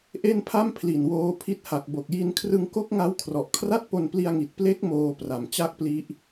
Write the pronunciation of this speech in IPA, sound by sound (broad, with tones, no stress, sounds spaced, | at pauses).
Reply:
ʔ e˥˩ n pʰ a˥˩ m pʰ l i˨˩ n w oː˧ pʰ i˦˥ t̚ h a˨˩ k̚ b o˨˩ k̚ j i˧ n kʰ r ɯ˧ ŋ k o˦˥ k̚ ŋ a˦˥ w kʰ r ɔ˨˩ ʔ kʰ r a˥˩ t̚ p o˧ n p l i˧ a̯ ŋ i˨˩ t̚ p l e˦˥ k̚ m oː˧ p r a˨˩ m t͡ɕ a˥˩ k̚ p l i˦˥ ʔ